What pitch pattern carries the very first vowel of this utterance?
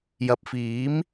rising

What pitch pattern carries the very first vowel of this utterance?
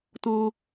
high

